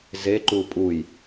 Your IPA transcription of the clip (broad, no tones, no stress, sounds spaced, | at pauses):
z e ǃ u pʼ u j